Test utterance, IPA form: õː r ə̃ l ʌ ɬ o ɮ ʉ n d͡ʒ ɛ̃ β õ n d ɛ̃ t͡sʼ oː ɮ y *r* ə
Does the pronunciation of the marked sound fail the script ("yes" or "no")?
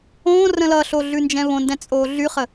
yes